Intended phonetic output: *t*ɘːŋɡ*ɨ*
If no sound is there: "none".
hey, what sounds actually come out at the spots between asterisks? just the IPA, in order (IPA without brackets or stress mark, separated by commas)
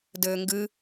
d, ɨ